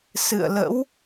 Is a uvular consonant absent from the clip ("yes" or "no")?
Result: yes